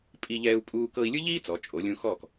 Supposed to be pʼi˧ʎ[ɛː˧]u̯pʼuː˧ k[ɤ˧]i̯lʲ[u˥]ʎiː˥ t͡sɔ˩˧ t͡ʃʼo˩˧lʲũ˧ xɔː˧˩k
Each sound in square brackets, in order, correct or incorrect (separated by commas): correct, correct, incorrect